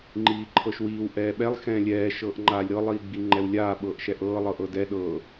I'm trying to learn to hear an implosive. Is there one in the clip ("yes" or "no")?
yes